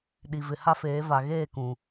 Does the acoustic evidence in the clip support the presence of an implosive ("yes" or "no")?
yes